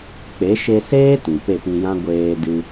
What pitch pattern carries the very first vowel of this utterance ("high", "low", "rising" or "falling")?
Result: rising